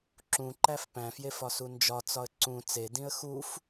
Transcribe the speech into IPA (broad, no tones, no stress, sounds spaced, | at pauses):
ǁ ũ ǃ æ f p æ̃ f j e f ɒ s u n d͡ʒ ɒ t͡s ɒ ə̯ ǀ ũ t͡s e d ĩ ə̯ x u f